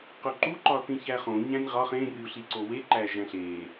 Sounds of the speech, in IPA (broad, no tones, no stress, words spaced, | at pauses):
qoǃu ǃɒθĩçæχõ ɲæ̃nʲʁɒχ ẽ rʲuɬiǀowe ǃæʒæ̃ɬe